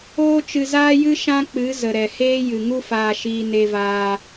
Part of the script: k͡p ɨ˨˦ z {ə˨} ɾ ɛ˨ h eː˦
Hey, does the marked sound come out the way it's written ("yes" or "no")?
yes